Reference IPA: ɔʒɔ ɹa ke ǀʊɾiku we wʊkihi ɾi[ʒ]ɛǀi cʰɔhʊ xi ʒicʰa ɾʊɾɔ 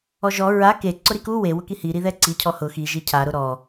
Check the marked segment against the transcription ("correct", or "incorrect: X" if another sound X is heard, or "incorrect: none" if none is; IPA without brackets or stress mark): incorrect: ð